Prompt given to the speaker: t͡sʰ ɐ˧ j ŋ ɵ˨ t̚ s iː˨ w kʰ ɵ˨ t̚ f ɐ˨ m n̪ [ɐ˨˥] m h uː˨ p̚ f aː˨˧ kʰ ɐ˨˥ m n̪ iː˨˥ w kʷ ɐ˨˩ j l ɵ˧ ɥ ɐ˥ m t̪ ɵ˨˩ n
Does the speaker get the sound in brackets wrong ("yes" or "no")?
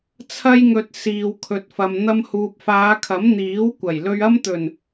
yes